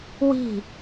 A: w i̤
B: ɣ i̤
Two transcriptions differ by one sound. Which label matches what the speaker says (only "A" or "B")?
A